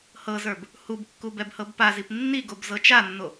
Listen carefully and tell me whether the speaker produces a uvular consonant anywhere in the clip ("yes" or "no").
no